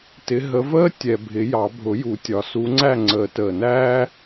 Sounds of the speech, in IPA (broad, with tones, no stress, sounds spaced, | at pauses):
t ɪ˨˦ ɦ ə˨˦ v əː˥ tʲ ɛ˨˩ bʱ ɪ˨˩˦ j ɑ˨˩˦ bʱ ʊ˨˩˦ j u˨˩ tʲ ɒ˨˩˦ s u˨˦ ŋ͡ǀ æ˥˨ ŋ͡ǀ əː˨˩˦ t əː˨˩ n æː˥